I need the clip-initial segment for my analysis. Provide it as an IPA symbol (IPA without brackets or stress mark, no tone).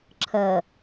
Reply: ǁʰ